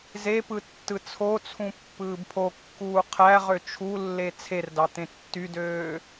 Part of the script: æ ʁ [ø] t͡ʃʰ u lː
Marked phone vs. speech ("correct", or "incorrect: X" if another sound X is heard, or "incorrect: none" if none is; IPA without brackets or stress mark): correct